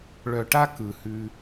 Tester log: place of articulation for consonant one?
retroflex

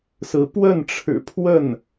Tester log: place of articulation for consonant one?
alveolar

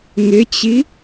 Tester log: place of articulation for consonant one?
velar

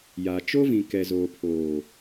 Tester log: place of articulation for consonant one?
palatal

